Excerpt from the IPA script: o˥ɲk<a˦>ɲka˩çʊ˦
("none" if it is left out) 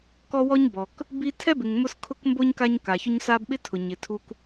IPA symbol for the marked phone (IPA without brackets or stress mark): a˦